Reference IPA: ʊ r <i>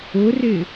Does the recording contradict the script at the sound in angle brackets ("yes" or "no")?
yes